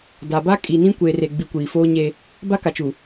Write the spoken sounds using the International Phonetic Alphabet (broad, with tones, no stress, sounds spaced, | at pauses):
d a˨ b a˦ kʼ i˨ n ĩ˦ kʷ e˨ r e˨ ɡ͡b i˨ kʷ iː˨ f oː˦ ɲ e˦ | b a˦ k a˨ t͡ʃ u˨